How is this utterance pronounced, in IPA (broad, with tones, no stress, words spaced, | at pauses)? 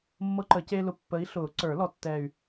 mːɤ˦ǃə˨˩˦ceː˦lʊ˨˦ pːə˨˦i̯ɬʊː˨˩˦ǀə˞˨˩˦lɔ˨˦ tːɛː˦˨y̯